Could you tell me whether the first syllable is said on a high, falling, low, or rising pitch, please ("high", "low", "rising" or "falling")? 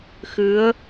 rising